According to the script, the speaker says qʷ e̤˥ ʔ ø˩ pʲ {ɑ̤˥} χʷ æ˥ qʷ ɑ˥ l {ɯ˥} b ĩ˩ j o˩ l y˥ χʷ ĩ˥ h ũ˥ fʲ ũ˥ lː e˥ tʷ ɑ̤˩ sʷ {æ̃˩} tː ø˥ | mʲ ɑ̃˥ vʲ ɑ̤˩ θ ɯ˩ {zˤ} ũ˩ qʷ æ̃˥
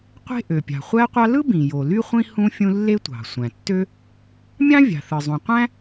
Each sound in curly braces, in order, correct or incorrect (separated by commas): incorrect, correct, correct, correct